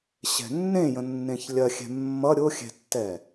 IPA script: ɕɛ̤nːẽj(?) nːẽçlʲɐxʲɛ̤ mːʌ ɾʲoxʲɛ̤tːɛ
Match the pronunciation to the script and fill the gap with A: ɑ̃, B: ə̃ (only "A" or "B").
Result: B